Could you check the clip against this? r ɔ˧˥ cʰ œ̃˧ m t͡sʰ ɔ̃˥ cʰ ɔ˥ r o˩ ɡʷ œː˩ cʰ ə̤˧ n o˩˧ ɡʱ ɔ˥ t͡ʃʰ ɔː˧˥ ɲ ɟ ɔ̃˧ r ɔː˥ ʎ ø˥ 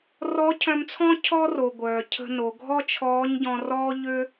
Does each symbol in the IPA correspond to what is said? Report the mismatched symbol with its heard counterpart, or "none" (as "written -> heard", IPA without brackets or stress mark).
none